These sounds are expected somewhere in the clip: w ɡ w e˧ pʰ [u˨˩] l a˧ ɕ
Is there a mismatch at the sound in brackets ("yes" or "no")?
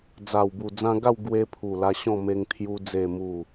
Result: no